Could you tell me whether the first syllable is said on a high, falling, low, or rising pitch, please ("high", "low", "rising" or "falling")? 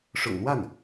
low